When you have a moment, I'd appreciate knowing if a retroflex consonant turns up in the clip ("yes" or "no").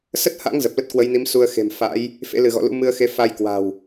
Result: no